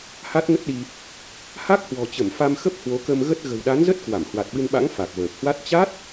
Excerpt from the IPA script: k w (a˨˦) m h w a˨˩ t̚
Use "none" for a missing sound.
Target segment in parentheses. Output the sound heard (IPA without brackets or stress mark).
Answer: a˧˩